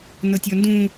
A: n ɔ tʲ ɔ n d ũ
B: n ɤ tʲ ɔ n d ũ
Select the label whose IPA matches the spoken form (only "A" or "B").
B